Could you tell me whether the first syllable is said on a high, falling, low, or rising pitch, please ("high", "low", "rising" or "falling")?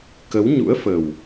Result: rising